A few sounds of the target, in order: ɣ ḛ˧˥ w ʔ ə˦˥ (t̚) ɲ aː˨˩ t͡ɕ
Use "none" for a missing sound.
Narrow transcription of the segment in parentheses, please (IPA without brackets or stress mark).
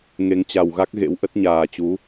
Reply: t̚